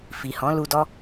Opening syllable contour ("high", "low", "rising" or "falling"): low